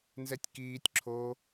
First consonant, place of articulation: alveolar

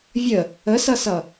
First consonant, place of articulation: labial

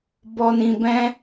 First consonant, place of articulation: labial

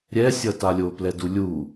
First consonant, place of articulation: alveolar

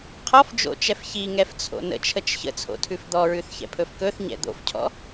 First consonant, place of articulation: uvular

